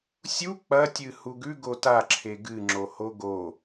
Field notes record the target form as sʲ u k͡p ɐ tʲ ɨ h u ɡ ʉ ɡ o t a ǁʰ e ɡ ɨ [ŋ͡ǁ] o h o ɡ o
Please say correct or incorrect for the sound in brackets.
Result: correct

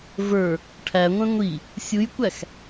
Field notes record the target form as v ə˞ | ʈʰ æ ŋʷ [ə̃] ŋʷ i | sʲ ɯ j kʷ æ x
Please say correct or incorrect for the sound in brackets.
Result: incorrect: ɛ̃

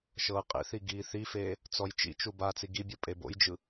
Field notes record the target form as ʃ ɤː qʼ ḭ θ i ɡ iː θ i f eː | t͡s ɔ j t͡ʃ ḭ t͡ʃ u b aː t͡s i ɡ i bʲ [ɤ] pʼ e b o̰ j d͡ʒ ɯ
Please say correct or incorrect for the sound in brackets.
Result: correct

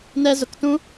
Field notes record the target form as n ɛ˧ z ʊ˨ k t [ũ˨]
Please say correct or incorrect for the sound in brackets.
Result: incorrect: ũ˦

